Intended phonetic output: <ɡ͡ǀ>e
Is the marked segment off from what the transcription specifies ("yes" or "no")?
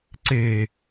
yes